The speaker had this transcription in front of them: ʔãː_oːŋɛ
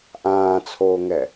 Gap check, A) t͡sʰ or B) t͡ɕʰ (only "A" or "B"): A